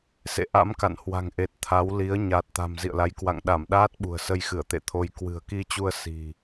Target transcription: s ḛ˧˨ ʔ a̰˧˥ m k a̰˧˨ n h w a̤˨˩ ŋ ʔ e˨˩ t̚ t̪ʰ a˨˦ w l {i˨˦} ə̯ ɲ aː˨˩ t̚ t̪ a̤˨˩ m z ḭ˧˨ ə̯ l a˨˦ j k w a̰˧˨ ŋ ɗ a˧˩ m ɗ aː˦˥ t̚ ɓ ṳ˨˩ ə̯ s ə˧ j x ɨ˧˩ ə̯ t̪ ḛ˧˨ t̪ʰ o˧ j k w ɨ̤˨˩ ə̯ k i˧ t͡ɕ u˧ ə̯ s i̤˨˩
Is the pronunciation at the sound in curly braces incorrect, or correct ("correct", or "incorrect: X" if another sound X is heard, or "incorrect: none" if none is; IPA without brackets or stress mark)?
correct